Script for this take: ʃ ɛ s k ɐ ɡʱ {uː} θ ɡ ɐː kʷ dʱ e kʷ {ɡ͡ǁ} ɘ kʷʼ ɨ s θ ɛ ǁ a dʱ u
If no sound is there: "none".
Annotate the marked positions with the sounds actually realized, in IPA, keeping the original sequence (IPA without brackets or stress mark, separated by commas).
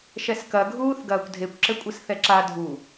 uː, ǁ